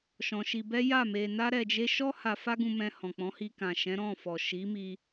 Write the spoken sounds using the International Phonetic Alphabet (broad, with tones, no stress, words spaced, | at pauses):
ʃɔ̃˧ʃi˧bɛ˦ ja˦˨me˧na˦ ɾɛ˧d͡ʒe˦ ʃɔ˦ha˧ fa˦ɡũ˧mɛ̃˧ hɔ̃˨ k͡pɔ̃˨˦hi˧ kã˨ʃɛ̃˨˦ ɾɔ̃˦˨fɔ˨ ʃi˨˦mi˧